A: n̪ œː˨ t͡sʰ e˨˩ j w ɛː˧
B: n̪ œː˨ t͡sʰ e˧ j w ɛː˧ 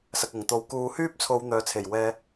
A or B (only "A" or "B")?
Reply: A